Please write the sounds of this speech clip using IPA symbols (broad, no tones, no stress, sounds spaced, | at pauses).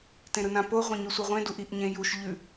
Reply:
t ẽ ɾ ɯ n ã p o ʁʷ ẽ ɲ ʉ sʷ ɯ ʁʷ ẽ d u ʔ i ʔ ɲ ẽ j u ʃ ʎ ʉ